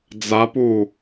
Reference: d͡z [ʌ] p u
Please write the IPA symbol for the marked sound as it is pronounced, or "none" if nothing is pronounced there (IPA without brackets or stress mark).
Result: a